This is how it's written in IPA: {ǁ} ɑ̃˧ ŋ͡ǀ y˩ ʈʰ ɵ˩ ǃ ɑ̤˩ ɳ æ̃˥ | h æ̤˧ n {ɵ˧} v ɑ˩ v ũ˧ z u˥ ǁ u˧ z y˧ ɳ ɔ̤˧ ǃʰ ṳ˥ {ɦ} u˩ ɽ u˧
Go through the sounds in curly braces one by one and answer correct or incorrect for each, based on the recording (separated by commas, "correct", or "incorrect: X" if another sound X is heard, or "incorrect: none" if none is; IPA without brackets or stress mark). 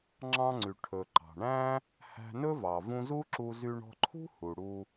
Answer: incorrect: ŋ͡ǁ, incorrect: ɵ˥, incorrect: h